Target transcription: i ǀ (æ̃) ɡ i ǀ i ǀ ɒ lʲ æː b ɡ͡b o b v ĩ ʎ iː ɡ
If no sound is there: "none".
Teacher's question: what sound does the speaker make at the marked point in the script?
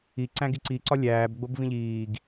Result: æ̃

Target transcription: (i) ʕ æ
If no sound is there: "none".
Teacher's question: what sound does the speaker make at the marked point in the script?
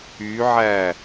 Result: y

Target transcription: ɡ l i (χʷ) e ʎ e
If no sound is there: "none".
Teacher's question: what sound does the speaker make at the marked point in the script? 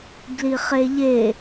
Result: χ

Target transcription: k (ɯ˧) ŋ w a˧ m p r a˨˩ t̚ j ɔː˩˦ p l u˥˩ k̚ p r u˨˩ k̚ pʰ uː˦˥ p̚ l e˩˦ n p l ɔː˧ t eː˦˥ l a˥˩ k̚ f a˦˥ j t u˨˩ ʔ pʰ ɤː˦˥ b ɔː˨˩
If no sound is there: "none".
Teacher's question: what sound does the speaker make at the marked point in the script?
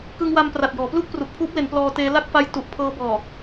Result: ɯ˧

